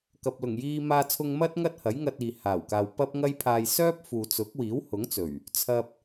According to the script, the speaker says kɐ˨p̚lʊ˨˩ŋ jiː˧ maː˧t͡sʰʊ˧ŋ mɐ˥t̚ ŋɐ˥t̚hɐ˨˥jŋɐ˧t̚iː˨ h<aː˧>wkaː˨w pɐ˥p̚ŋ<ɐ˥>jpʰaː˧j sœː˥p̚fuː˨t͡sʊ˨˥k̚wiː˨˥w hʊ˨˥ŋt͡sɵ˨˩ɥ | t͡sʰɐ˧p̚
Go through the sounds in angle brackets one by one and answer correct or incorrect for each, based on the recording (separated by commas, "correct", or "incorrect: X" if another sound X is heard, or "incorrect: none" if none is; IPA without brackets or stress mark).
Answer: incorrect: aː˨˩, correct